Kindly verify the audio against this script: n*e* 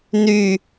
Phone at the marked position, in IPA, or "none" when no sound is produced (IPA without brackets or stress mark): y